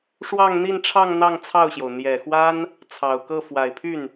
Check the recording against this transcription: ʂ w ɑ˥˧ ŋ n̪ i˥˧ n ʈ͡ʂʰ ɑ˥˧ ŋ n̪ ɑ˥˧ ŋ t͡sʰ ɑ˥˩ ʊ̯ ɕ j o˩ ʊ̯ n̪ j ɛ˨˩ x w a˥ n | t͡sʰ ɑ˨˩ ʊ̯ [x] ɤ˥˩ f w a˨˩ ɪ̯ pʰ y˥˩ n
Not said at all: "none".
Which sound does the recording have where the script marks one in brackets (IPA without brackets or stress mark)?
k